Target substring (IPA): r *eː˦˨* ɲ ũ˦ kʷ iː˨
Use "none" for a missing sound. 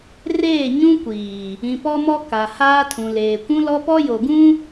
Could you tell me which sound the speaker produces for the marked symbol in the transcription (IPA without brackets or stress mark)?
eː˦˨